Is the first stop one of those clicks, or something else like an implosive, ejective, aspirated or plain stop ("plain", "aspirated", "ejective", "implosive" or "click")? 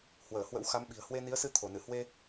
implosive